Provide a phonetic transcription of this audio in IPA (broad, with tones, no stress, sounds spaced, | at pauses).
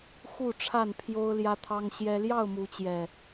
x u˥˨ ʈ͡ʂʰ a˥˨ n pʰ j o˦ ʊ̯ l j ä˦ t̪ʰ ɑ˦ ŋ ɕ j ɛ˦ l j ɑ˥˨ ʊ̯ m u˨˦ t͡ɕ j ɛ˨˩